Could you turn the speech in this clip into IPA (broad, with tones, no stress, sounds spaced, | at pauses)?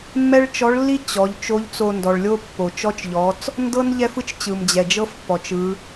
mː ɛ˥ ɭ t͡ʃ ɔ˧˥ ɭ lː i˥ t͡ɕ ɔ˩˧ ʎ t͡ʃ o˧˥ ʎ t͡s o˧ n d ɔ˩ ɭ lʲ o˥ pː o˩ t͡ʃ ɔ˧˥ t͡ʃ ʎ ɔ˩˧ t͡s | n d ɤ˥ n ʎ ɛ˥ f ɯ˥ t͡ʃ t͡ɕ ɯ˩ m d͡ʑ ɛ˩ d͡ʒ ɤ˥ f pː ɔ˩ t͡ʃ ɯ˩˧